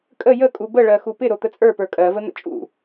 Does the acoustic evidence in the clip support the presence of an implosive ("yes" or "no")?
no